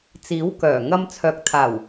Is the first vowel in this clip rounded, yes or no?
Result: no